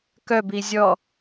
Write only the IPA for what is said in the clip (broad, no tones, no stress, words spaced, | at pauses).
kœbi zʲɔ